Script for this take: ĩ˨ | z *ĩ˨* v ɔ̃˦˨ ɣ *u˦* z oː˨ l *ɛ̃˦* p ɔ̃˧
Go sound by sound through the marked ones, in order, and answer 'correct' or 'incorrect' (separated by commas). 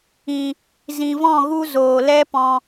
correct, correct, incorrect